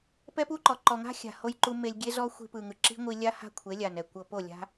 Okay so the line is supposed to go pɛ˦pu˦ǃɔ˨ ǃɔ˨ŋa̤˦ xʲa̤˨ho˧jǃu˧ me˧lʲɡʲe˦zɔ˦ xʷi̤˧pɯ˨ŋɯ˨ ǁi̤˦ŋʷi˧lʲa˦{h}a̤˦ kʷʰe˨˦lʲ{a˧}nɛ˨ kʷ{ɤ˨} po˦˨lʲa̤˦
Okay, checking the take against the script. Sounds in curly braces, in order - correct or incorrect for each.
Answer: correct, incorrect, correct

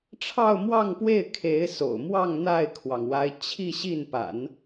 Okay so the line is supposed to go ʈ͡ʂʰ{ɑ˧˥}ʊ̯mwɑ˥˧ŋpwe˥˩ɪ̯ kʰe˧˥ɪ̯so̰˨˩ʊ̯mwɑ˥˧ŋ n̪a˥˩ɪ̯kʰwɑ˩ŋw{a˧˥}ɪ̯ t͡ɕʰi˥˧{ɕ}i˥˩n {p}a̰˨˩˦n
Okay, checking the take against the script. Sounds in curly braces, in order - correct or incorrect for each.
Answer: incorrect, correct, correct, correct

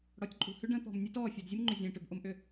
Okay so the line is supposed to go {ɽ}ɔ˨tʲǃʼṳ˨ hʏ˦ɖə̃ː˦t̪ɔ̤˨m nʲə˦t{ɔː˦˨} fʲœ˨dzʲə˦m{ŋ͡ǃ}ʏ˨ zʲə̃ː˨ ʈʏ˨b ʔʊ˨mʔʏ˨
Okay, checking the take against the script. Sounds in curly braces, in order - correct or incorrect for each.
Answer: correct, correct, correct

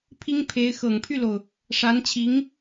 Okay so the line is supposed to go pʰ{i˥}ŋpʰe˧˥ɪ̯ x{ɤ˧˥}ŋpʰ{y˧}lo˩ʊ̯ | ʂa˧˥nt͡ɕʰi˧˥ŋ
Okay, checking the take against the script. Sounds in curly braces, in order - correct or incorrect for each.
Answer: correct, incorrect, incorrect

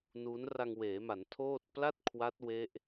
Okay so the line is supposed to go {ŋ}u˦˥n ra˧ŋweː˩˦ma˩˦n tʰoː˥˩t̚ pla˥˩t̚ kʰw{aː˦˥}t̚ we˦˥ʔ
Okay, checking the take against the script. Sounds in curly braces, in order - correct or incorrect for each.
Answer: incorrect, incorrect

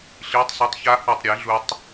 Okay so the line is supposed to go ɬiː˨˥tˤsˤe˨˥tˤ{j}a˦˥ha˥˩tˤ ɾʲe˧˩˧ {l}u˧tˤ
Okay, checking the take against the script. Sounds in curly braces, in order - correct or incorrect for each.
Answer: incorrect, incorrect

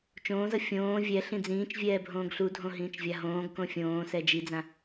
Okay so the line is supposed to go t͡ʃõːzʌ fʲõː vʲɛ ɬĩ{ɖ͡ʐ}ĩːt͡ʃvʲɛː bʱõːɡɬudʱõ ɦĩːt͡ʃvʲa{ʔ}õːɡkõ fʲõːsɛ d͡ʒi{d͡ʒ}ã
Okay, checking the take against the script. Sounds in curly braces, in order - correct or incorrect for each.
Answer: incorrect, incorrect, incorrect

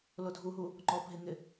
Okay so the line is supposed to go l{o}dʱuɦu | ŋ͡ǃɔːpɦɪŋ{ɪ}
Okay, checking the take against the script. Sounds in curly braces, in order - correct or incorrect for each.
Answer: correct, correct

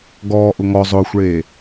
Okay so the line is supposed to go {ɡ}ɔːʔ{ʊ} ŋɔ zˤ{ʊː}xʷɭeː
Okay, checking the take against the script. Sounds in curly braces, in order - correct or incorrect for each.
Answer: correct, correct, correct

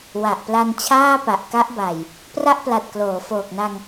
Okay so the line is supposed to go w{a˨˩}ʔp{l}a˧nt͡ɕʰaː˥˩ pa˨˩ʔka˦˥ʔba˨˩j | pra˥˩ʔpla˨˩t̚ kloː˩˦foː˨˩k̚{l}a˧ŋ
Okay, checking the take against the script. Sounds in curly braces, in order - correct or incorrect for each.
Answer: correct, correct, incorrect

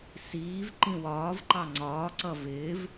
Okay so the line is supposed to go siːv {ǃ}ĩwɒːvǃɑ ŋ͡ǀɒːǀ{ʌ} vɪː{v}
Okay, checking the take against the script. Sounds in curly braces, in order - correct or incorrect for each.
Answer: correct, correct, correct

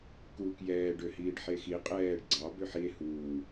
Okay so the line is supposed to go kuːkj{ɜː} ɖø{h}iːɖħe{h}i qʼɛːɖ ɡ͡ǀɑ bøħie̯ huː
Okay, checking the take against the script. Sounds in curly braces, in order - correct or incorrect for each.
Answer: incorrect, correct, incorrect

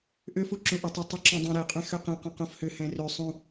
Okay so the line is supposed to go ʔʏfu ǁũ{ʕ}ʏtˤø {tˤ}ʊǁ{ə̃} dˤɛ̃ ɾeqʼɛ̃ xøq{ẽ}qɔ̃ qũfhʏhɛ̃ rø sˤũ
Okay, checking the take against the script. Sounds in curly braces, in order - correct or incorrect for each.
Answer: incorrect, correct, incorrect, correct

